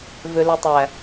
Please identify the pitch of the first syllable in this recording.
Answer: low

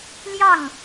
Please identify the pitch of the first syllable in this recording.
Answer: falling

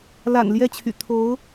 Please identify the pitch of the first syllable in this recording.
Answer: low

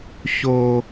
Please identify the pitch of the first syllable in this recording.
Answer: low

